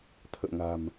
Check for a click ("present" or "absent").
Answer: absent